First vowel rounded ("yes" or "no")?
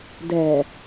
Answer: no